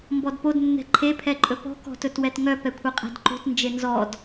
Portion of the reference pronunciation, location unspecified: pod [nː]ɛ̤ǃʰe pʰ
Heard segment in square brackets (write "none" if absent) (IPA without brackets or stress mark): nː